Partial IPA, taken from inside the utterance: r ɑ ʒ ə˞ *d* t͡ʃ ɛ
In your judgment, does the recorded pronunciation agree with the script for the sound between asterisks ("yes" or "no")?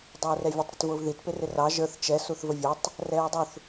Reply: no